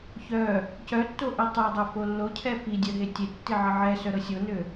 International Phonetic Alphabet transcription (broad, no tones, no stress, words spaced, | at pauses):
çœ | cœtːoʔi tˤødˤø folːo cʰɛfidʲœɦe tʲetːi ʕəʕɛ sœɾɤsʲonø